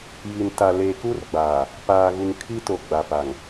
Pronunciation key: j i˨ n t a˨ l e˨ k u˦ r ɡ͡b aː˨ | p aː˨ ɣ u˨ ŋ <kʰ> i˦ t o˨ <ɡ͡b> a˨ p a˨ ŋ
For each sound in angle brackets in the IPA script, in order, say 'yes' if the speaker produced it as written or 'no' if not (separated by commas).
yes, yes